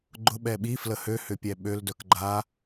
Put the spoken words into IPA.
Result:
ɡ͡ǃ ʊ ɓ ɛ ɓ i f l ə h ø h ʏ pʲ ɛ ɓ ø l d œ k ɡ͡ǃ a

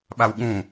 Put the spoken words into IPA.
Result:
ɓ a w ɠ ũ

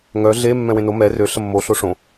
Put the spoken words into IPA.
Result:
ŋ œ ɮ e mː ɛ̃ w ẽ n o m ɛ r ø ɬ ə mː o ɬ o ʂ õ

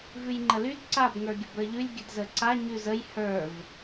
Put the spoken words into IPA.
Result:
v ʉ j ŋ͡ǃ ə l y d ǀ a b ŋ ə˞ ɡʲ ə b ə˞ ʎ ʉ lʲ ɡʲ ə d z ə ǀ a ɲ ʉ z ə j h ə˞ v

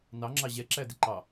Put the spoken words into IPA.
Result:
n ɑ ŋ͡ǁ ɑ ʑ ɛ ǁ æ d ɪ ǃ ɑ

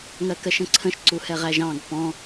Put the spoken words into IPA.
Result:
ŋ ɜ k ɜ ʃ ə̃ ǀʰ ə̃ ʃ ǀ u h ɛ ʁ æ ʒ ɑ̃ ɡ p ɔ̃

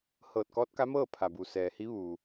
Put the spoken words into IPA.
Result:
h ɤː˧˩ t̚ k ɔː˧˥ t̚ k a˧˥ m ɤː˥˨ pʰ a˩ b u˩ s ɛː˩ h i˧˥ ʋ uː˩

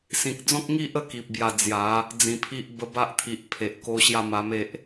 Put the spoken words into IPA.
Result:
s ĩ˨ k̚ d͡z ɔ̃˦ k̚ ŋ i˦ ʔ ə˦ k i˨ p̚ b j a˧ d͡z j a˨˦ | d͡z ĩ˨˩ pʰ i˦ ʔ b ə˧ b a˦ ʔ t̪ʰ i˨ ʔ pʰ e˨ ʔ k o˦ ɕ j a˥˧ m a˧ m e˦ ʔ

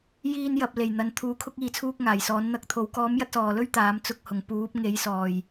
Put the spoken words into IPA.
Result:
j iː˧ n j ɐ˨ p̚ l e˨˩ j n̪ ɐ˨˧ n t̪ʰ uː˧ kʰ ʊ˥ k̚ iː˧ t͡sʰ uː˥ k̚ ŋ aː˨˩ j s ɔː˨˥ n n̪ ɐ˧ k̚ t̪ʰ o˨˥ w k ɔː˨˥ m j ɐ˧ t̚ s ɔː˨˩ l ɵ˥ ɥ t̪ aː˨˥ m t͡s ʊ˧ k̚ h ʊ˨˩ ŋ p uː˨˥ p̚ ŋ e˨˥ j s ɔː˨˩ j

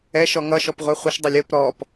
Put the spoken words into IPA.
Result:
ɛ ʃ ɔ ŋ ʌ ʃ ɔ p ʁʷ ɛ χʷ ə ʃ dˤ ʌ lʲ ə p ɾ ɔ p

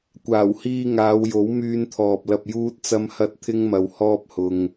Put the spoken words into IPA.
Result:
kʷ aː˨˩ w h iː˧ ŋ aː˨˧ w j o˨˥ w m yː˧ n t̪ʰ ɔː˨ p̚ l ɐ˧ p̚ j uː˥ t̚ t͡s ɐ˥ m h ɐ˥ t̚ t̪ʰ ɪ˥ ŋ m ɐ˧ w h ɔː˥ p̚ h ʊ˧ ŋ

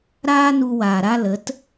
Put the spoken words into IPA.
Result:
ɾ aː˦ n u˧ w aː˨ ɾ a˦ l ə˨˦ t

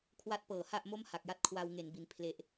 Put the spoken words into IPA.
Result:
kʰ w a˦˥ t̚ p ɤː˩˦ h a˥˩ ʔ m o˥˩ m h a˨˩ k̚ j a˥˩ t̚ kʰ w a˧ w ŋ e˩˦ n b i˩˦ n pʰ l e˦˥ ʔ

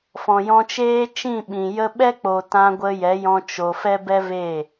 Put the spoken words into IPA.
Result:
f ɔ̃˨ j ɔ̃˧ t͡ʃ eː˦ t͡ʃ ĩ˦˨ ɓ ĩ˨ j ə˧ ɓ ɛ˦ k͡p o˨ t ã˧ ɡʷ ə˧ j ɛ˨˦ j ɔ̃˧ t͡ʃ o˧ f ɛ˦ b ɛ˦ v e˦˨

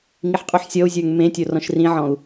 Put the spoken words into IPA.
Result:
ŋ i ħ qʼ u ħ sʲ ɔ u̯ zʲ ə˞ ŋ m ẽ tʲ o r ɔ̃ ʃ r ĩ ʕ ɔ̃ u̯

